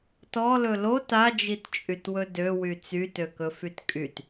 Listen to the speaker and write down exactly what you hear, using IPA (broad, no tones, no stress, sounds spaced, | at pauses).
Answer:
t ɔ l ɵ l o t a d͡ʒ i t t͡ʃʼ y t w ɵ d ø w y t͡s y t ø k ɵ f y t kʼ y t